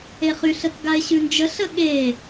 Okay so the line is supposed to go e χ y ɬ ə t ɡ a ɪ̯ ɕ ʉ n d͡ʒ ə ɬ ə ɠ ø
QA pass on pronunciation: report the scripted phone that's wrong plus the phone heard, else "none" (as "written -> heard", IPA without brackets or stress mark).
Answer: ø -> e